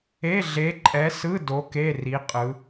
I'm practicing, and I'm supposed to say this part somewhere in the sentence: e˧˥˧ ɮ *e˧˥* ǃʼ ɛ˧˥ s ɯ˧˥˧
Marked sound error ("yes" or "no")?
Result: no